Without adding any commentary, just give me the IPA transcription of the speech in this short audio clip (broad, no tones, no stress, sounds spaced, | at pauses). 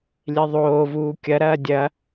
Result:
lʲ e ðˤ oː v uː kʲ ɐ ɾ ɐː dʲ ɐ